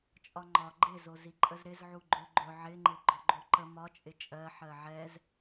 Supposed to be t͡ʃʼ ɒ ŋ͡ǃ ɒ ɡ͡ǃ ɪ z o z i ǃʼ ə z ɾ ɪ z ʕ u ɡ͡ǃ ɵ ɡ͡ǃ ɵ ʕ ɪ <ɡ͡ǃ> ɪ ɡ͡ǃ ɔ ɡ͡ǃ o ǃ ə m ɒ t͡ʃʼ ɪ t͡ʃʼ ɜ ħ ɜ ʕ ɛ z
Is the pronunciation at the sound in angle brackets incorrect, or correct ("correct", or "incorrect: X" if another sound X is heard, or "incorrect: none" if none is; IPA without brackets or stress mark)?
incorrect: ŋ͡ǃ